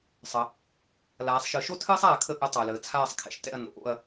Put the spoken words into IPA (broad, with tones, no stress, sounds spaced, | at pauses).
sˤ ə˩˧ | l aː˩˧ sˤ ʃ ɨ˩˧ ʃ o˥ tʰ ɨː˥ sˤ aː˦˨ kʰ ə˦˨ ʔ ɨ˨˥ tˤ əː˩ l əː˩ t͡sʰ aː˦˨ sˤ kʰ ɛ̰˩ ʃ t ɛ̰˦˨ ɐ̯ n o̰˩˧ ʔ o̰˦˨ ɐ̯